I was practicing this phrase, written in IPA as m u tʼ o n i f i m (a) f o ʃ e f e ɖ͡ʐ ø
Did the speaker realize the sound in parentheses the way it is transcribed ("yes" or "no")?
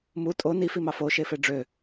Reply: no